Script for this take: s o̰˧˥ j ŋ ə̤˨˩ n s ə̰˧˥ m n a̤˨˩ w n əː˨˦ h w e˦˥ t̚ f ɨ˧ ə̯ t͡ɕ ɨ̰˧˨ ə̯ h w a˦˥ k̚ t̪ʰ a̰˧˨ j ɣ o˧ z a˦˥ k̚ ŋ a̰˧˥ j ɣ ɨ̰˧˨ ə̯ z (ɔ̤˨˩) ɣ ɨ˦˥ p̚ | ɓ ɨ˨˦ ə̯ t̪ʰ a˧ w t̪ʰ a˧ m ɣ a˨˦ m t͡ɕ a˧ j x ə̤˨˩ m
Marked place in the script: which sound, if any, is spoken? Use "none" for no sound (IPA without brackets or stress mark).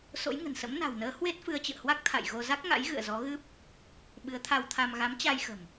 ɔ˨˦